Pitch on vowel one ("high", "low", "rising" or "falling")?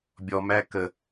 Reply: low